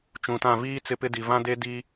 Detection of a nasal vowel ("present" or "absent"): present